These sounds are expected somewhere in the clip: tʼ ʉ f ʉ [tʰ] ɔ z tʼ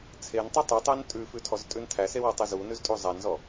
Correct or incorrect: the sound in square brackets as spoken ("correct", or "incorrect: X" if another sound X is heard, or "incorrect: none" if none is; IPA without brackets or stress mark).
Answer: correct